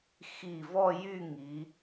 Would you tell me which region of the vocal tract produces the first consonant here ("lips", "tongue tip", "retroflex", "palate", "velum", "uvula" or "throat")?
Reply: velum